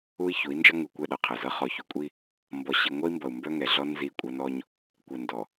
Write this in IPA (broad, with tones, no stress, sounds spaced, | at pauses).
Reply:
u˦ i̯ ç u˨˦ i̯ n d͡ʒ ʌ˦ ŋ u˨ kʷ ɛ˦˨ ɗ ʌ˦ qʰ ɛ˨ z ʌ˦ χ ɔ˨ ç u˨ kʷʼ i˦ | m b ɔ˨ ɕ i˨ ŋʷ ɛ˦ i̯ m b ʌ˨ u̯ m b œ˦ ŋ ɛ˨ ɮ ɔ˦ n z i˦˨ kʷʼ ɐ˦ n ɔ˦ ɲ | kʷ ɛ˨ n d ɔ˨